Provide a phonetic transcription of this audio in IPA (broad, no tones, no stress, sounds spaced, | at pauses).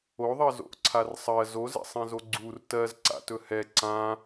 o ðˤ ɜ z o̰ ʔ ǀʰ a r sˤ ɜ z o z ɛ̰ sˤ ɛ̃ z o ɡ͡ǀ u r t ɜ z ǀ a̰ t ɵ h ɛ ǀ ã